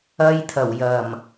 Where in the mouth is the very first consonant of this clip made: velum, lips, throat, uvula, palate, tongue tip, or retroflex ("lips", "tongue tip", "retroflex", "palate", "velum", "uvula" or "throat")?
palate